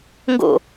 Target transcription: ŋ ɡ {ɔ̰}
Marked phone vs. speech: incorrect: o̰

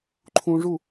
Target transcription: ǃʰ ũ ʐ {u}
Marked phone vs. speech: correct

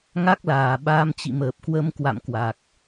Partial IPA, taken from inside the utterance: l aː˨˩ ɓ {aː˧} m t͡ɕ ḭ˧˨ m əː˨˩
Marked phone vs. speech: correct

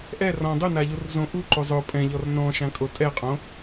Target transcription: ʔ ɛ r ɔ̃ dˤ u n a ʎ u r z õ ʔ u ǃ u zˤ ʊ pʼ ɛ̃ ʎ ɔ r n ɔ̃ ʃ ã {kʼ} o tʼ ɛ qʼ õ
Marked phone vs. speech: correct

